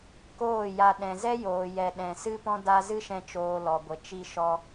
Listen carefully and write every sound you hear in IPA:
koː˦˨ja˧ ɗɛ̃˨zɛ˦joː˨jɛ˨ ɗɛ̃˨sɨ˦pɔ̃˦ da˧ zɨ˦ʃɛ̃˧ t͡ʃoː˧lɔ˨ɡʷə˨ t͡ʃi˧ʃɔ˧

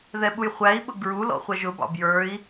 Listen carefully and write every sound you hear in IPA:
ðɛɓujχʷæi̯ɓʊ ɡɹu lɔ̰χʷɛʒʊbɑ̰ bjə˞i̯

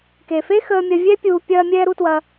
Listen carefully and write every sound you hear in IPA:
ke˨fe˦xəː˧mʲɐ˧ vʲɛ˦pʲuː˧ pʲɐː˦ mʲɛː˦ɾu˦twɐ˦

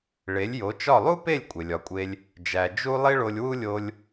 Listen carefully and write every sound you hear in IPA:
ɭe˩˥lʲjo˩˥t͡ʃɒ˥˩ lˠu˥pe˥˩lʲ kʷʼe˩lʲɒ˩˥kʷʼe˧lʲ | d͡ʒæ˩ d͡ʒu˥ lˠi˥ɭo˧lʲwu˥lʲo˧lʲ

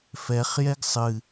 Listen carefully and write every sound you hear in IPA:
fɛχjɛɡ sˤɨ

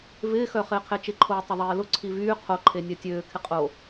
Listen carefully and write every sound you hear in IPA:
vɪːxœ χɪːqʰet͡ʃɪǃʰoː tˤɪðˤeːlʊ ǀʰivyː qʰoǃʰe nʲœtʲøː kʰɪqʼo

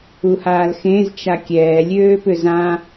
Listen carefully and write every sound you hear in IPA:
uhaːlxẽz t͡ʃakʲɛː lʲøːpʏzã

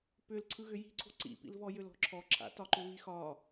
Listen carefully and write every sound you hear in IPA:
pʏl ǀʰɯɣʏji̤ǀʰo̤ ǀḭpḭlvɔ jʏlɔ̤ǁʰɔǁʰa̰ tɒǃʏβixɒ

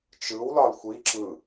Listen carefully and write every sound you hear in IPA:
t͡ʃɯwlɒl xʷi ǁɯ

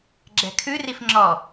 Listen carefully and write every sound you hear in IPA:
ɡ͡ǁɛ̤kʰʉ rifŋ͡ǁɔ

